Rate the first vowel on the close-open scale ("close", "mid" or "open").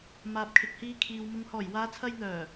open